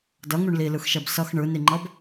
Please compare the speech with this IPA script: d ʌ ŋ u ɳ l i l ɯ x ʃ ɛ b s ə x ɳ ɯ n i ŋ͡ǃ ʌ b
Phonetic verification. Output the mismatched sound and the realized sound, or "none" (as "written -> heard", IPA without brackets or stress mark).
ə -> ʌ